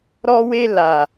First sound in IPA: ɾ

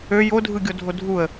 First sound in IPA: ø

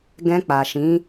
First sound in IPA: ɡ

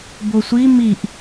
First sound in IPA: b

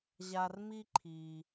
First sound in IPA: ʑ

